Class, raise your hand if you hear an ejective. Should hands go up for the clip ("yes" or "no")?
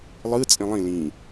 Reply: yes